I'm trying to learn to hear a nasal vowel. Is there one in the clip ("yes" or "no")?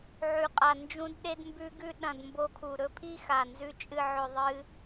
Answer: yes